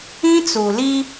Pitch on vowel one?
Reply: high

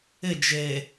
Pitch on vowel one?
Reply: falling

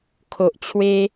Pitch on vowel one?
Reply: low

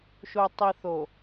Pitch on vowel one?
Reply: low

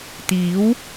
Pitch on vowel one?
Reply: rising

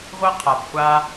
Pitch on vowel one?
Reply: high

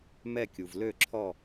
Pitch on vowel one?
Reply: falling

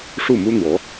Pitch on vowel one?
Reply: falling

